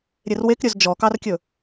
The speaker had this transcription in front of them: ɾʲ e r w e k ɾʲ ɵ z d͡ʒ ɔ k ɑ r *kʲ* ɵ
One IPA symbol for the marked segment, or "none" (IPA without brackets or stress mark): kʲ